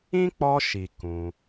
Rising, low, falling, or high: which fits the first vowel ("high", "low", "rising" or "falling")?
high